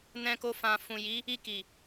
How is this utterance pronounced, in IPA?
n ɛ̃˧ k o˧ f ã˨ f ũ˨ j i˨˦ | i˧ k i˨

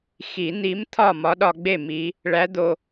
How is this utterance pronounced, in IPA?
x i˨˩˦ n̪ i˧˥ m t̪ʰ ɒ˥˨ m ɒ˧˥ ɗ ɒ˧ ɡ͡b e˥˨ m i˧˥ | ɭ æ˧˥ d̪ o˧

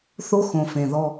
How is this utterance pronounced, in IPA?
θ o˦ x õ˨ f ẽ˨ ð ɔ˧

